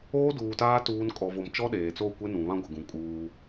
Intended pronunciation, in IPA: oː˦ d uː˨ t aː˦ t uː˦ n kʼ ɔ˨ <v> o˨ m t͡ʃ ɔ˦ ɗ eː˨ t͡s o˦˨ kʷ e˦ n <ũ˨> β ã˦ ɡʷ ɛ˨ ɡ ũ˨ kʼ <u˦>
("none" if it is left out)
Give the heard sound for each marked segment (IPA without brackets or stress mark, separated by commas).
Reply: v, ũ˨, uː˦